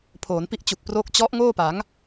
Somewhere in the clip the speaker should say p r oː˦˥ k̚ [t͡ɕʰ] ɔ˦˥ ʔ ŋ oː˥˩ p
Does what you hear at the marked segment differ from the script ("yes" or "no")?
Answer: yes